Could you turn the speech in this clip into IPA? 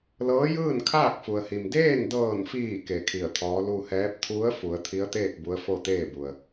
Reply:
l ɤː˧˥ j ɯː˥˨ n kʰ aː˥˨ k̚ f u˩ ə̯ h i˩ m d eː˥˨ n d ɤː˧˩ n f iː˧˩ k e˧˩ kʰ i˧˩ ə̯ t̪ʰ ɔː˧˥ l u˧ h ɛː˧˥ p̚ t̪ʰ u˧˥ ə̯ f u˩˧ ə̯ t̪ʰ i˧˥ ə̯ t̪ eː˥˨ k̚ b u˧˥ ə̯ f o˥˨ t̪ eː˥˨ b u˩ ə̯

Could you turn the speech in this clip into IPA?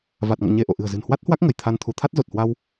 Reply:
v a˨˩ t̚ ŋ ɔ̰˧˨ ɲ e˧ ʔ o̰˧˨ ʔ ɨ̤˨˩ ə̯ z ɨ̤˨˩ n h w a˦˥ t̚ h w a˦˥ k̚ ŋ ə˧˩ j t̪ʰ a˧ n t̪ʰ u˨˦ t̪ʰ a˦˥ t̚ z o˨˩ t̚ h w a˧ w

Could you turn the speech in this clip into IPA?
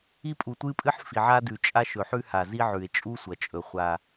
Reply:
i˧ pʼ u˩ tʷ ɨ˧ pʼ ɨ˧ ħ f i˩ ʕ a˧ d ʉ˩ t͡ʃʼ a˧ ʃ ɵ˩ ħ ʉ˧ h a˩ z i˧ ʕ ʉ˩ e̯ t͡ʃʼ u˧ sʷ ɐ˩ t͡ʃʼ ɵ˩ χʷ a˩

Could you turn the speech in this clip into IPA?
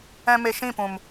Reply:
ɛ̃˧ m e˧ ʃ ĩ˦˨ p ũ˨ m

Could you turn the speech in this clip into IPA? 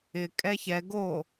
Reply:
ɪ kʼ ɛ ç ɛ ɡ o

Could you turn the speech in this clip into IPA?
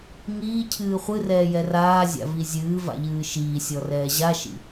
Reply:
ŋ iː cʰ ɨː χʷ ɨ r ɛː j ɛ r aː zʲ a̰ v i zʲ ɨː v a̰ ʎ ɨː ʃ iː sʲ ɔ r ɛː ʑ a ʃ ḭ

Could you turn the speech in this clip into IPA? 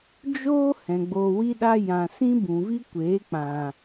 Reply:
d͡ʒ oː˦ h ɛ̃˨ ɡ͡b oː˧ w i˦ ɗ a˦ j ã˨ s ĩ˦ b ũ˨ v i˦ kʷ eː˨˦ k͡p ã˨

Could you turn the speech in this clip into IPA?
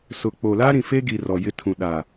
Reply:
s ʊ˨ k͡p o˨ l a˦ ɾ ĩ˨ f e˦ ɡ i˨ r ɔ˨ j ɪ˦ tʰ ũ˨ ɗ a˨

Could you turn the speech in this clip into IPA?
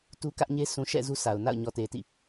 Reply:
t u˦ k ä˦ ʔ ɲ e˦ sʰ ũ˨ ʃ ɛ̰˦˨ z u˦ sʰ a˨ ʊ̯ n a̰˦˨ ʊ̯ ɲ ɔ˨ t e˨ t ḭ˦˨

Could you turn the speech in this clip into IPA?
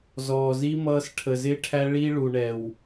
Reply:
z ɔː˨ z i˦ m ʌː˦ s ʈʰ ə˨ z ɪː˦ ʈʰ æ˦ ɭ i˦ ɭ u˨ ɳ ɛ˨ w

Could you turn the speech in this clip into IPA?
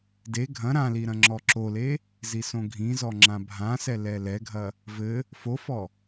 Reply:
d e ɡʱ ɐ̃ ɾ ã l i ɾ ɐ̃ ŋ͡ǁ ɔ ǁ o l e | z i s õ ɡʱ ĩ z ɔ ŋ͡ǁ ã bʱ ã s ɛ l ɛ l ɛ ɡʱ ɐ | v ɘ | f o f ɔ

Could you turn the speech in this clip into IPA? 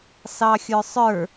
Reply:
s ɑ xʲ ə˞ sˤ ə˞

